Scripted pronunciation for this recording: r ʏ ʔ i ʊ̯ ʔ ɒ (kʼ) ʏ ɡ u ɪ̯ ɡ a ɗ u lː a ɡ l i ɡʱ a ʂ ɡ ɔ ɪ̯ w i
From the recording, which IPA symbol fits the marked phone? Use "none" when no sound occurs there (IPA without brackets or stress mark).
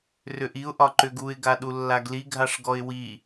ǃ